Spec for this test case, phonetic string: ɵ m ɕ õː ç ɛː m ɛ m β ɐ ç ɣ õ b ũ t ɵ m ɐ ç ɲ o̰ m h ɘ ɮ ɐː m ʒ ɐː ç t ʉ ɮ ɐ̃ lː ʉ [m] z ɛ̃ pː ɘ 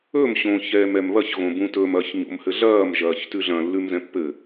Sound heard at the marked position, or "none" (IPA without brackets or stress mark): m